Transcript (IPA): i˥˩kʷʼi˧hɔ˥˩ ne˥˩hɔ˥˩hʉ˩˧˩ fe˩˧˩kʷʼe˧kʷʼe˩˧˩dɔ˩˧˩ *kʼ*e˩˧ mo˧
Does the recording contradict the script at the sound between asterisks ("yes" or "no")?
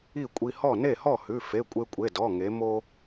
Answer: yes